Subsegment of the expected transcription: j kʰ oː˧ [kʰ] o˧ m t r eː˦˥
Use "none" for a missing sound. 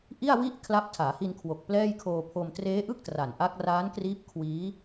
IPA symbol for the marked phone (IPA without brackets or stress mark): pʰ